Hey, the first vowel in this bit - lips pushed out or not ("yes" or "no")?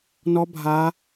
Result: yes